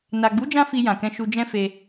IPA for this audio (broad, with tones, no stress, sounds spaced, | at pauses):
n a˨ ɡ͡b u˨˦ d͡ʒ ã˧ f i˨ j ã˨ k ɛ̃˧ ʃ u˧ d͡ʒ ɛ̃˦ f e˧